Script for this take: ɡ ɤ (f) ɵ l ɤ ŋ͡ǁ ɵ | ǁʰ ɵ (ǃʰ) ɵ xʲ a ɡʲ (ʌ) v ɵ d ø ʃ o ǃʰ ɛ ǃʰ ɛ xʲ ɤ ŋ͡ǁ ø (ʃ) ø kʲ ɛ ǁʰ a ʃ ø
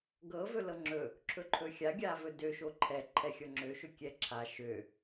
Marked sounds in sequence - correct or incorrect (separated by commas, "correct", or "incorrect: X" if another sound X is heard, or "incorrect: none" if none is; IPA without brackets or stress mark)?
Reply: incorrect: v, correct, incorrect: a, correct